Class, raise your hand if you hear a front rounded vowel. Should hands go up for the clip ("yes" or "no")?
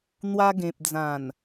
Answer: no